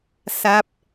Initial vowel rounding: unrounded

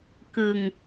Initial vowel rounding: unrounded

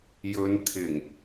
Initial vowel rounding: rounded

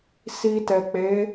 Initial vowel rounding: unrounded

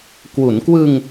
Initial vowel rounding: rounded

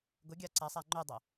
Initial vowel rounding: rounded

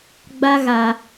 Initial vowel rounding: unrounded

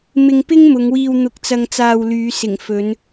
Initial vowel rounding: unrounded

